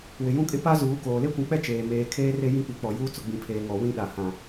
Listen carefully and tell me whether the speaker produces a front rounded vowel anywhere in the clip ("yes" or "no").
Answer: no